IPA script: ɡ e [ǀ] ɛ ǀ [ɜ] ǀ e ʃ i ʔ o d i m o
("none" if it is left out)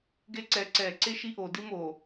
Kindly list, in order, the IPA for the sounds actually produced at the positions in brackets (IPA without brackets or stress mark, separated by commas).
ǀ, ɛ